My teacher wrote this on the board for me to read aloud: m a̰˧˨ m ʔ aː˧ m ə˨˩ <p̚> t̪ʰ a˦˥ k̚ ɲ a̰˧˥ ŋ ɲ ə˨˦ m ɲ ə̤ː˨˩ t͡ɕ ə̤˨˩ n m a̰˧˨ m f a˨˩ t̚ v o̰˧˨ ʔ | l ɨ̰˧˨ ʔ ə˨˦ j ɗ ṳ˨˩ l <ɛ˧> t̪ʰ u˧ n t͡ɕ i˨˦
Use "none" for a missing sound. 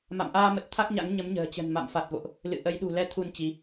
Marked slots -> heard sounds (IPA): t̚, ɛ˧

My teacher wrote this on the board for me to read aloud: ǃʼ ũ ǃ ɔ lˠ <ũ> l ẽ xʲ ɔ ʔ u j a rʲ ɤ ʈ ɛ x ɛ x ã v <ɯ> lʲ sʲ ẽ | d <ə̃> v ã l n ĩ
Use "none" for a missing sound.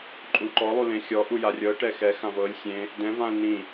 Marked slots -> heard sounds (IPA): u, ɤ, ɛ̃

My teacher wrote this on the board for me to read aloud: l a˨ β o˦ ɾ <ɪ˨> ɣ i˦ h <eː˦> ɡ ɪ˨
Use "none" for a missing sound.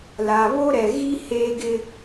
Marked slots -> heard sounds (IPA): ɛ˨, eː˨

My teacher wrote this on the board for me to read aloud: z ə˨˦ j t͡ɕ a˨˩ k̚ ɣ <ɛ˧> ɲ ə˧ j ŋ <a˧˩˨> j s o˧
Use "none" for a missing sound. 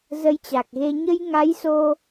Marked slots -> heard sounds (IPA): e˧, a˨˦

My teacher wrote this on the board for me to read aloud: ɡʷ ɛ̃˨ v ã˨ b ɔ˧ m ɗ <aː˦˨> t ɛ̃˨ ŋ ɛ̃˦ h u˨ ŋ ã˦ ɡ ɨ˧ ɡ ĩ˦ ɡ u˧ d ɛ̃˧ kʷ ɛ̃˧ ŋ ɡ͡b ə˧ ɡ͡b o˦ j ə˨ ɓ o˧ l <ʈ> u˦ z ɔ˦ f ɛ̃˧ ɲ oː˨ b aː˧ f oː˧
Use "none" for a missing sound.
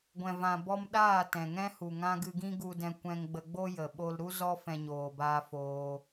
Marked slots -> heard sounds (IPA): aː˦˨, ɾ

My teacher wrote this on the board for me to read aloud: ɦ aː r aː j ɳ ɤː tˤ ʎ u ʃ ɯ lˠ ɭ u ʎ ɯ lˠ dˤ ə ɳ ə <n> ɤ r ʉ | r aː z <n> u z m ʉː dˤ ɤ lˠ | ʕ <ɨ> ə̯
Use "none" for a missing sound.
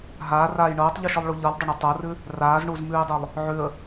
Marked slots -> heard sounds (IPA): tˤ, ɳ, ʉ

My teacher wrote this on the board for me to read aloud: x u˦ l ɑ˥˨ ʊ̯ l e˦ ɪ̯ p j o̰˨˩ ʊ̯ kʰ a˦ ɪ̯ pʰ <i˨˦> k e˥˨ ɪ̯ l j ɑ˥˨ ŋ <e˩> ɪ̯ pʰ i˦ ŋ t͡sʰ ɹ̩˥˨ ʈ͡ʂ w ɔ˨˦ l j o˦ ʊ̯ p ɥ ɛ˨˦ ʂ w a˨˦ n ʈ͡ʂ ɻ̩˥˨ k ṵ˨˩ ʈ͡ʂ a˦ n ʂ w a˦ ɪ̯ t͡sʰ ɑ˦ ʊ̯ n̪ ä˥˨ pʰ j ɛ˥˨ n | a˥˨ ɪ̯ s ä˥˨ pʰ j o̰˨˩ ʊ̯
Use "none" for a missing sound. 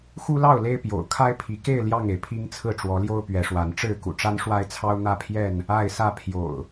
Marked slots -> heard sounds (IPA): i˨˦, e˩

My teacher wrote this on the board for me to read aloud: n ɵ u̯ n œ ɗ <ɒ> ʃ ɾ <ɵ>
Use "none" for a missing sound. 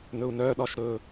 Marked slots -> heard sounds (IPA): ɒ, ɵ

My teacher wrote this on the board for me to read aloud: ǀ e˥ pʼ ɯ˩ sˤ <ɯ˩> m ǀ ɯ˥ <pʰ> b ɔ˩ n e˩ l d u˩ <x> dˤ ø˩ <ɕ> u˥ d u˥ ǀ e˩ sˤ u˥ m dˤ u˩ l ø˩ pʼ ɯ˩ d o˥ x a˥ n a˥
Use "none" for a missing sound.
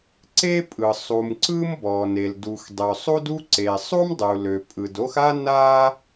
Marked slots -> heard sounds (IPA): u˩, m, x, sˤ

